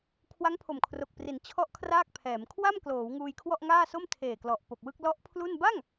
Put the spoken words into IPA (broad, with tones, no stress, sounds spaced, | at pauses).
kʰ w a˦˥ ŋ pʰ o˨˩ m kʰ r o˨˩ k̚ p r i˩˦ n t͡ɕʰ ɔ˦˥ ʔ kʰ r aː˥˩ k̚ pʰ ɛː˩˦ m kʰ w a˥˩ m k l oː˩˦ w ŋ uː˧ j kʰ w ɔ˥˩ ʔ ŋ aː˥˩ s o˥˩ m tʰ eː˨˩ k l ɔ˨˩ ʔ p o˨˩ k̚ w ɯ˥˩ k̚ l ɔ˦˥ ʔ pʰ l u˥˩ n b a˥˩ ŋ